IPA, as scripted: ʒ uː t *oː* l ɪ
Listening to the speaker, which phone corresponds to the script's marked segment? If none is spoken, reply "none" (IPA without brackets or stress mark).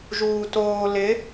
oː